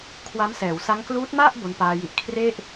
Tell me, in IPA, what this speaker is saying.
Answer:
kʰ w a˦˥ m s ɛː˩˦ w s a˦˥ ŋ k l uː˦˥ t̚ m a˥˩ ʔ b o˧ n p aː˧ j i˦˥ ʔ kʰ r e˥˩ ʔ

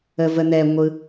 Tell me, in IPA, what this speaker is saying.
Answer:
ə v ə n̪ ɛ ŋʷ ɯ

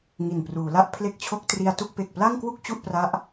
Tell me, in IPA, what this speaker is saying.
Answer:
ŋ i˨˩ n p r uː˩˦ l a˥˩ ʔ pʰ l e˦˥ k̚ t͡ɕʰ o˦˥ k̚ t r i˧ a̯ t u˥˩ k̚ p e˨˩ k̚ p l a˥˩ ŋ k w u˥˩ k̚ t͡ɕ u˥˩ ʔ p r a˦˥ ʔ

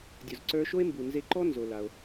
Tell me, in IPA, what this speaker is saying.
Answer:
dʲ o˩ z ǀ ə˞˧ ʃ o˥ e̯ m b u˩ n z e˧ ǃ ɔ˥ n z o˩ l a˩ o̯

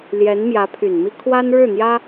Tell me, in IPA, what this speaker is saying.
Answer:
l j ɛ˧˥ n m j ä˧˥ pʰ y˨˩ n m i˥ kʰ w a˥ n ɻ ɻ̩˥˩ n̪ j ä˥

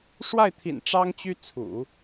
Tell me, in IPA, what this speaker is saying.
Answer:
ʂ w a˥˩ ɪ̯ t̪ʰ ḭ˨˩ n ʈ͡ʂ ɑ˥ ŋ t͡ɕ y˥ t͡sʰ ṵ˨˩˦

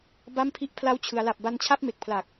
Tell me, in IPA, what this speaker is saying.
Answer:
b a˥˩ m pʰ i˥˩ ʔ pʰ l a˦˥ w t͡ɕʰ ɯ˩˦ a̯ l a˨˩ p̚ b a˧ n t͡ɕʰ a˥˩ p̚ m e˨˩ k̚ pʰ l a˨˩ k̚

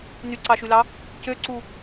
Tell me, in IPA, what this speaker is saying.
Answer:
n y ǀ ɑ ʃ y l ɑ | c ø ǀ u

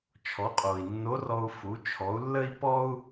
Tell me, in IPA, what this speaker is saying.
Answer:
t͡ʃʰ ɔ˩˧ qʼ o˩ i̯ nː o˧˥ r ɔ˧ u̯ f u˩˧ t͡ʃʰ ɔ˩˧ u̯ lː ə˥ i̯ p ɔ˥ u̯

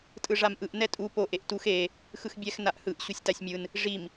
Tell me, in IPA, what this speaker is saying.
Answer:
tʼ ɯ ʐ a m ʔ ɯ ʔ n ɛ tʼ u p o ʔ e ʔ t u x e | x ɯ x bʲ ɛ x n a ʔ h ɯ ʔ ɕ u sʲ t a sʲ mʲ ɯ n | ʐ i m

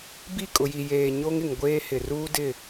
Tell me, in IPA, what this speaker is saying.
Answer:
b i˦˨ kʼ ʊ˨ j i˨ j eː˨ ɲ o˦ ŋ ɪ˨ ŋ ɡʷ eː˦ h ɪ˨ r uː˦ d ɪ˦˨

